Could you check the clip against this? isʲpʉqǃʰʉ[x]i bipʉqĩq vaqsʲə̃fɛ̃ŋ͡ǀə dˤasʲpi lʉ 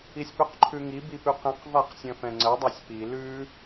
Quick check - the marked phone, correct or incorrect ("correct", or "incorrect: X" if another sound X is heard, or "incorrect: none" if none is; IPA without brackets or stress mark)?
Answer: incorrect: ŋ